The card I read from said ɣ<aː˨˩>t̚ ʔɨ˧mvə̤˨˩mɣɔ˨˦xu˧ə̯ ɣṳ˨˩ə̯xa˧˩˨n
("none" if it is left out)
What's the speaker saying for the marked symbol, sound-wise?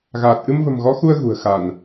aː˨˩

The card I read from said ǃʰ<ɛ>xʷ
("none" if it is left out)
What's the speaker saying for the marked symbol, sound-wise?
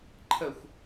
ə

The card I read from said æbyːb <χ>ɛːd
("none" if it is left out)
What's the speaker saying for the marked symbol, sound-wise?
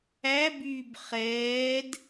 χ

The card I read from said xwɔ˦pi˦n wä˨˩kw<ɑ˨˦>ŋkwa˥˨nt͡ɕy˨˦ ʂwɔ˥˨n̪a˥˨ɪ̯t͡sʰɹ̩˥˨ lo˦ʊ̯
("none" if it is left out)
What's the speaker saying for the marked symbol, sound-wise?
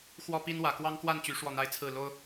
ɑ˦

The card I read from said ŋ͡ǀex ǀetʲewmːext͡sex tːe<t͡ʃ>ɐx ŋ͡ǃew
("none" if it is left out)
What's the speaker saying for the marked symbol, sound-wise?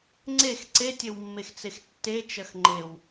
t͡ʃ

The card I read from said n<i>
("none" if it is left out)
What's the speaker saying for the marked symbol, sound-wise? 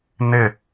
ɪ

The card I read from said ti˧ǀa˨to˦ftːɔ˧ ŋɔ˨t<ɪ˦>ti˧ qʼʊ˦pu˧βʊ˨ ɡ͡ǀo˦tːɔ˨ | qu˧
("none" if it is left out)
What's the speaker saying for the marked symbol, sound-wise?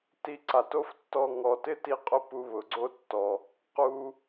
ɪ˦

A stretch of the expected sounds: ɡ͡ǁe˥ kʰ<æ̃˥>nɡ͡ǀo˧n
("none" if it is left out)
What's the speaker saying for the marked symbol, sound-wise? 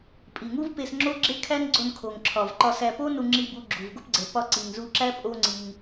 æ˥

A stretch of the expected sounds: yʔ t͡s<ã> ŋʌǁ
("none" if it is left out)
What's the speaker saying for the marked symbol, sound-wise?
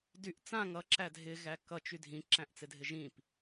ã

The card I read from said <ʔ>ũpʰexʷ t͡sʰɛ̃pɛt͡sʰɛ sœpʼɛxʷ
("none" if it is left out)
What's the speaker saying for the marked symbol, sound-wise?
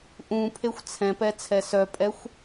ʔ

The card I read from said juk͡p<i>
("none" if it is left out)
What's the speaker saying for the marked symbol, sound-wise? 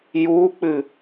ɨ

